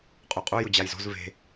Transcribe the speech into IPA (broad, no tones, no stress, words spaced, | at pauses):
qʼʉqʼu jʊd͡ʑajzo̤z ve̤